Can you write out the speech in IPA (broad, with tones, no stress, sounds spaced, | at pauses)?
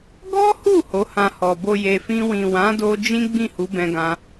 ɡ ɔ˦ h u˦˨ h o˨˦ h ã˧ h ɔ˨ b o˨ j e˨ f ĩ˧ w ĩ˨ w ã˨˦ d o˧ d͡ʒ ĩ˦ ɡ͡b ĩ˦˨ h u˨˦ b ɛ̃˧ ɡ ã˧